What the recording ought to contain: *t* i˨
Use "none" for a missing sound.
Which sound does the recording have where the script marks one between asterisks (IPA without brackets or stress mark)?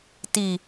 t